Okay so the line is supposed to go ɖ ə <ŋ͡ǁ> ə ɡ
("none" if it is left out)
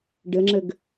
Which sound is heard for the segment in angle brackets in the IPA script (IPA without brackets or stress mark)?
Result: ŋ͡ǁ